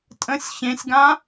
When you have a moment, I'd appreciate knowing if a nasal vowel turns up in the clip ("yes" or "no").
yes